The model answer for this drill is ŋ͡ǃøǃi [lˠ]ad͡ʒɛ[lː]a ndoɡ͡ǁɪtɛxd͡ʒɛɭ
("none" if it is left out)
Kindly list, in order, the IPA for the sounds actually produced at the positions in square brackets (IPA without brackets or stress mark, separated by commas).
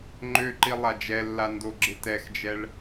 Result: lˠ, lː